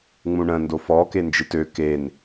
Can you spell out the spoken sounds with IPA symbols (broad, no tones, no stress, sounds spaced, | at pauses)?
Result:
ŋ͡m ũ ɳ ə̃ n d o f ɔ k e n d͡ʒ ɯ t ø k e n